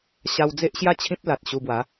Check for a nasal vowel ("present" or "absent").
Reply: present